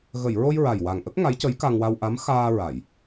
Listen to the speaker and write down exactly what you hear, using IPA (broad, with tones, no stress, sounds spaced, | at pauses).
ɣ ə˨˩˨ j ɹ o˧ j ɹ a˨˩ j w a˨˩ ŋ ʔ ə˦˥ k̚ ŋ a˧˥ j c ə˧˥ j k a˧ ŋ w a˧ w ʔ a˧˥ m x aː˧ ɹ a˨˩˨ j